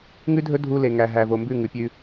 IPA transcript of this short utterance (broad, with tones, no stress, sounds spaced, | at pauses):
ŋ ʉ˦ dʱ ɵ˦ dʱ u˧ l e˨ ŋ æ˨ ɦ æ˨ v o˨ m b ʉ˦˨ ŋ ʉ˨ pʲ ʉ˧